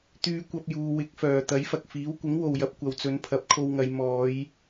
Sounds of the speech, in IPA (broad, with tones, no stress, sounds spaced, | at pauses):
t̪ yː˧ kʷ ɐ˧ p̚ j uː˨˧ w ɪ˨˥ k̚ f œː˨ t̪ ɐ˨˥ j f ɐ˨ k̚ f iː˨˥ w kʷ ɪ˨˥ ŋ w o˨ w j ɐ˨˥ p̚ kʷ ɐ˨ w t͡s ɵ˨˧ n pʰ ɐ˨˥ p̚ kʰ o˧ w ŋ ɐ˨˧ j m ɔː˨˧ j